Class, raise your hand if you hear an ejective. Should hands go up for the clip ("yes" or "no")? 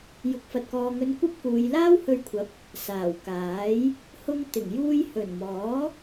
no